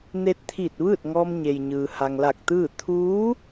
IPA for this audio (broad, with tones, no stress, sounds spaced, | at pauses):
n e˧ t̚ t̪ʰ iː˧˩ t̚ ʋ ɯː˥˨ t̚ ŋ ɔː˧ m ɲ e˩ j ɲ ɯː˩ h a˩ ŋ l a˧˩ k̚ t̪ ɯː˥˨ t̪ʰ uː˧˥